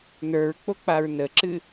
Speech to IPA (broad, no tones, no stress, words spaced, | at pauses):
nə˞ɹk͡po k͡paɹnəǁɨ